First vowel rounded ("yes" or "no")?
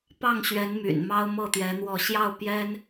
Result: no